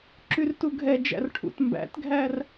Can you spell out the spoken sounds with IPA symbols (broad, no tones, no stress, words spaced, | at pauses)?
ǁyrtuɡʱɛd͡ʒæ̰r ʈʰṵtmbæ̰tɡʱær